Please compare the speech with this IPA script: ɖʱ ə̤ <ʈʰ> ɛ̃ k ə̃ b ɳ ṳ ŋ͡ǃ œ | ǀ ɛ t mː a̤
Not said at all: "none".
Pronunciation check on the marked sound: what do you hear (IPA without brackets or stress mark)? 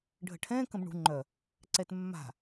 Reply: ʈʰ